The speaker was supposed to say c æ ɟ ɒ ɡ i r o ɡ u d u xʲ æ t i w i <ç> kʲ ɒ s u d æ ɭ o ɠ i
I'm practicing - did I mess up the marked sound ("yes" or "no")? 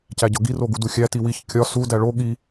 no